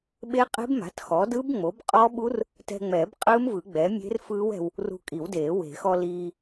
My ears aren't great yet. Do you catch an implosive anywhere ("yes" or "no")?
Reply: yes